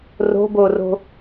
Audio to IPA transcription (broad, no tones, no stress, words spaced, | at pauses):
ro̤boro̤